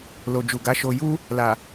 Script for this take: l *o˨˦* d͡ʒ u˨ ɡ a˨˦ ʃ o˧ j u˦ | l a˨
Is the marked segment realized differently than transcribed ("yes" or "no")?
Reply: yes